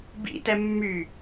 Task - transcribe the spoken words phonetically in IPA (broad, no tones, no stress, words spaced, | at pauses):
bḭtɛ mːy